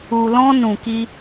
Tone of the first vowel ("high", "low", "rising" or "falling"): low